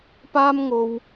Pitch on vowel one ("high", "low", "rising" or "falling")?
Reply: high